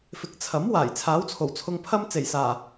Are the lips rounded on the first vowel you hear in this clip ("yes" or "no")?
no